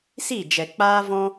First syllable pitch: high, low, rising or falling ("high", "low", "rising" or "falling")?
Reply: falling